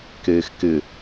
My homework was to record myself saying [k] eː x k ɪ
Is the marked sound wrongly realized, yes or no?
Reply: no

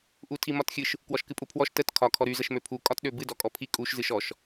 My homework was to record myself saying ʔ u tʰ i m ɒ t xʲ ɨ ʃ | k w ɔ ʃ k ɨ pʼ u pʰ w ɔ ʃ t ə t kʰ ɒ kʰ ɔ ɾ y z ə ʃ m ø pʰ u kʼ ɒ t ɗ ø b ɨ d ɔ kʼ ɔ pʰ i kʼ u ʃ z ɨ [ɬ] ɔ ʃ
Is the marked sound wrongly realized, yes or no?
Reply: yes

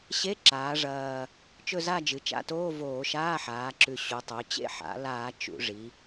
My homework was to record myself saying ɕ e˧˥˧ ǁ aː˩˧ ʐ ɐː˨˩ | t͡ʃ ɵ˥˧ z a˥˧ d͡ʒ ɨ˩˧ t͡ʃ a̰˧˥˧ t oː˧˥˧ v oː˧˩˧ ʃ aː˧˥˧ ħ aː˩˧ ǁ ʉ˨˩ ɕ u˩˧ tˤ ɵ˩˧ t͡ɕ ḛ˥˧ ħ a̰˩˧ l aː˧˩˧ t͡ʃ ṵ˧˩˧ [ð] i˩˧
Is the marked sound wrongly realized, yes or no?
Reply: yes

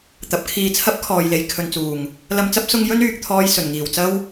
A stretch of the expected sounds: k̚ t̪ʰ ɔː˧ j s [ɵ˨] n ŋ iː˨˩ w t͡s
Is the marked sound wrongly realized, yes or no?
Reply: yes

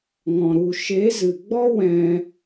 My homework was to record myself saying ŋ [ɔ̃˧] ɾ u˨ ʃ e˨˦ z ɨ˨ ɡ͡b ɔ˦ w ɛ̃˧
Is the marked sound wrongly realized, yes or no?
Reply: yes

